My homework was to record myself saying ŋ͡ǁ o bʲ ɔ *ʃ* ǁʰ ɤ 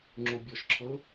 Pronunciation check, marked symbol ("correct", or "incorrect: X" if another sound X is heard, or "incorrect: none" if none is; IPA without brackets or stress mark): correct